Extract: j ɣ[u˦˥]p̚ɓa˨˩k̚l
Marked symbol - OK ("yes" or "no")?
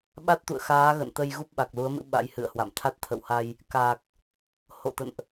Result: yes